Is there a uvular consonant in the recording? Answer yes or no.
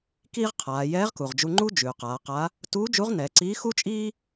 yes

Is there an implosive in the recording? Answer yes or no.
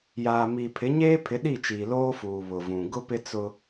yes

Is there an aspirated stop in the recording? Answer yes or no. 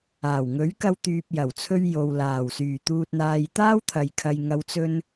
yes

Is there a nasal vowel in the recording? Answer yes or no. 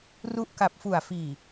no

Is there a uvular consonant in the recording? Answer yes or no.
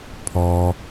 no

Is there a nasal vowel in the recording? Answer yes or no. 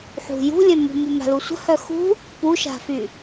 yes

